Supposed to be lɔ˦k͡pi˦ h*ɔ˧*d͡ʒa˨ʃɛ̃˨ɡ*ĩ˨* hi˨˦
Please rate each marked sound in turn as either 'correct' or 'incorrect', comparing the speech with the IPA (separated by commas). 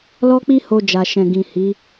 incorrect, correct